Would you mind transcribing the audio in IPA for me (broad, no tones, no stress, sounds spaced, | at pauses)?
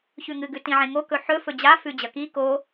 ç ʉ ŋ ɨ ɡ ʉ t ĩ ʕ ẽ ŋ o k ɵ ħ ɵ f ɵ d͡ʑ a f ʉ d͡ʑ ɐ k i k o